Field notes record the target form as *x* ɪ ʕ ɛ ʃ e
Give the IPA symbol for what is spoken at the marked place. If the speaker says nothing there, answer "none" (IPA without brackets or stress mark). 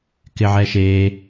k